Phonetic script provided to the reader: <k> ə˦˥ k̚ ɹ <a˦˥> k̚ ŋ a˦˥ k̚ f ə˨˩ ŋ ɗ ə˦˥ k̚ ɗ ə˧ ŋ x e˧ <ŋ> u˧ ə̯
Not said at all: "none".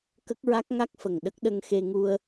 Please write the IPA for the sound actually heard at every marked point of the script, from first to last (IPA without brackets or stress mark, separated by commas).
k, a˦˥, ŋ